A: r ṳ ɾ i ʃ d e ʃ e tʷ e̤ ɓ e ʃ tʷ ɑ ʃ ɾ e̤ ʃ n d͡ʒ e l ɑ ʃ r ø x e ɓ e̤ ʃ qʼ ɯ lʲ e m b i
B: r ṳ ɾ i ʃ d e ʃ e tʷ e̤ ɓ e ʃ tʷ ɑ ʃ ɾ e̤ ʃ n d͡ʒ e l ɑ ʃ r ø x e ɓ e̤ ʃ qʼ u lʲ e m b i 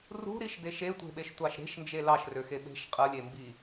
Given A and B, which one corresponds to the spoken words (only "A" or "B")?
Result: A